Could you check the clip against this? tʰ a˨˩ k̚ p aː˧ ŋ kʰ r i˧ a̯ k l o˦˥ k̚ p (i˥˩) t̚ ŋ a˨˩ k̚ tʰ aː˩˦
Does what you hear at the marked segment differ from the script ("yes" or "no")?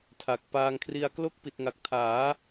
yes